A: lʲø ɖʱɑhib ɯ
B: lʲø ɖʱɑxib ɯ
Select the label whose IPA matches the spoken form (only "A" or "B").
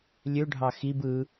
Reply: B